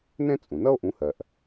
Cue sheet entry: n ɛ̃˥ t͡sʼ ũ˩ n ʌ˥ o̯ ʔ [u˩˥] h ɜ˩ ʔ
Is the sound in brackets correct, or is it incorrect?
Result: incorrect